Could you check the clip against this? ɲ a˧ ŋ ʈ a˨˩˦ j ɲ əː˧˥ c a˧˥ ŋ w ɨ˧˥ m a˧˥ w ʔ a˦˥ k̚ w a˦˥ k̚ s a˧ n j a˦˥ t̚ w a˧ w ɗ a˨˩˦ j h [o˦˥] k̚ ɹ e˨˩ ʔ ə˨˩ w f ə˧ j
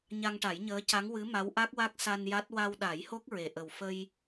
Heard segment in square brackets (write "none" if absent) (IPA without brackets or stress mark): o˦˥